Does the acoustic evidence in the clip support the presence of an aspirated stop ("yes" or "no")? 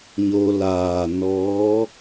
no